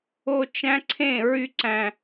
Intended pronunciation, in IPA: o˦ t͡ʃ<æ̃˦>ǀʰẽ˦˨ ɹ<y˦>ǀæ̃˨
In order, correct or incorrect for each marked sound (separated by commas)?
correct, correct